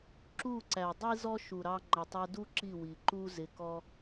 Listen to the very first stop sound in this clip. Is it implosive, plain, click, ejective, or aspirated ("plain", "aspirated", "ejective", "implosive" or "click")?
click